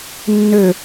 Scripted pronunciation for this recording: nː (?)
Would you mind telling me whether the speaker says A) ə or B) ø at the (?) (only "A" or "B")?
B